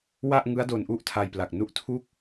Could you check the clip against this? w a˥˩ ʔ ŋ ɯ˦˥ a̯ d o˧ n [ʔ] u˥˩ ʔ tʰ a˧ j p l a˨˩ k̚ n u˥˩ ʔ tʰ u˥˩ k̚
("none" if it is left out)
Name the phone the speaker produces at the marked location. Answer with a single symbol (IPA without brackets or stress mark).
ʔ